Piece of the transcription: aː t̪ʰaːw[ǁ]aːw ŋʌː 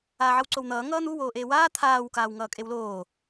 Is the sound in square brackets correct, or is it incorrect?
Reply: incorrect: k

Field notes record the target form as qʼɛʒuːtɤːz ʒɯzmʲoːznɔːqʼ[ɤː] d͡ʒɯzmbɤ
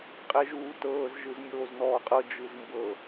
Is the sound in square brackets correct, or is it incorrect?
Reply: incorrect: ɤ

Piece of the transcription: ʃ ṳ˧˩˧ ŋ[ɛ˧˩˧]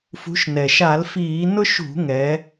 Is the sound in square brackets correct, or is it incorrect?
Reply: incorrect: ɛ˨˥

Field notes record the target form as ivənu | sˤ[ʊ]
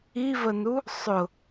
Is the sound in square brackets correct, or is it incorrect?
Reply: correct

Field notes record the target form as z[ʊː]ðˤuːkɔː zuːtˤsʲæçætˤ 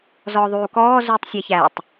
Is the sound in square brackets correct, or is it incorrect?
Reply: incorrect: ɔː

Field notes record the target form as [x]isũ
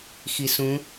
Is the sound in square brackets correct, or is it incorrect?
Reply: correct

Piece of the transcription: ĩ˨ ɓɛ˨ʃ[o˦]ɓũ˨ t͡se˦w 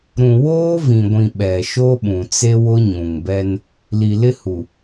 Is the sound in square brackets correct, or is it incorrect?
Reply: correct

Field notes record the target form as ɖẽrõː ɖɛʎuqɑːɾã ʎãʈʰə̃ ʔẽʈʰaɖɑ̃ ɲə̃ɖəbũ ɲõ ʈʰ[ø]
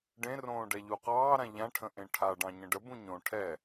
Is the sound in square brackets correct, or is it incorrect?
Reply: incorrect: ɛ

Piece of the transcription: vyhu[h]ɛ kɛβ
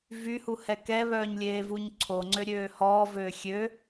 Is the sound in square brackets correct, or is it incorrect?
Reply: correct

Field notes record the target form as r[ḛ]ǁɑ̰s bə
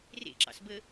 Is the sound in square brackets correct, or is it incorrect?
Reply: correct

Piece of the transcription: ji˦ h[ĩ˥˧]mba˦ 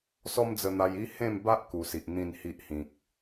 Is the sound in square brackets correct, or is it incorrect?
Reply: incorrect: ẽ˥˧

